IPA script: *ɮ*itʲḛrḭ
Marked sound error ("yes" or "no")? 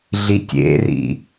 no